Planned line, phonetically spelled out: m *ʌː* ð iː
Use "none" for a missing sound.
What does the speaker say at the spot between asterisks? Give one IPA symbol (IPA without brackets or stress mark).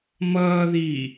ʌː